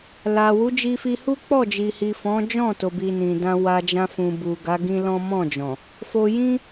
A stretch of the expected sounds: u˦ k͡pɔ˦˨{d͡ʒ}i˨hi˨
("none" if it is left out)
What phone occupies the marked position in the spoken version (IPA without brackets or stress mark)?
d͡ʒ